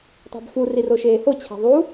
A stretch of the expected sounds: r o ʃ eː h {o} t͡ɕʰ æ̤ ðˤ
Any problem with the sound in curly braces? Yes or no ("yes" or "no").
no